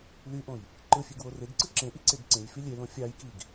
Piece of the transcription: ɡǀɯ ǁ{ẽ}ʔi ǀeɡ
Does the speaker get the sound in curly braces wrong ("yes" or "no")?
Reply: no